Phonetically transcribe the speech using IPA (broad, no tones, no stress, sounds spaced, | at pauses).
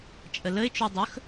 t͡ʃʼ ə l ə ɪ̯ t͡ʃ u dˤ ɵ x